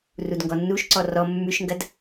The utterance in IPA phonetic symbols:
r u d ŋ ɡ ɔ nː u ʃ ǀ ɔ r ɔ mː ʉ ʃ ŋ ɡ ɐ d

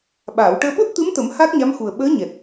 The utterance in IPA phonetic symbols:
ɓ aː˨˩˨ w ʈ əː˧ ɓ o˦˥ t̚ t̪ ɨ˧˥ m t̪ ə˨˩˦ m h a˦˥ k̚ ɲ a˧˥ m x u˨˩ ə̯ ɓ əː˧˥ ɲ ɛ˨˩ t̚

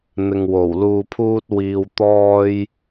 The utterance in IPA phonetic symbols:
n̪ ɪ˨ ŋ w o˨˩ w l uː˨ pʰ uː˧ t̚ w iː˧ w t̪ ɔː˧ j

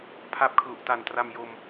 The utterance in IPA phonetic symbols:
pʰ a˦˥ p̚ kʰ l u˨˩ ʔ t a˨˩ n t r a˧ m j o˧ m

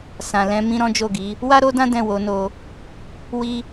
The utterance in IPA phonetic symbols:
s ã˨ l ɛ̃˨˦ m ĩ˦ ɾ ɔ̃˦ d͡ʒ o˦˨ ɡ i˨˦ | w a˦ ɾ o˦ d ã˦ d ɛ̃˦˨ w o˨˦ n o˧ | w i˦

